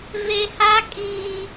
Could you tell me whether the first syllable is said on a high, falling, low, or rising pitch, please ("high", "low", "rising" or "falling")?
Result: high